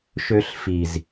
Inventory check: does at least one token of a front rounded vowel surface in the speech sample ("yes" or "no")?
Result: yes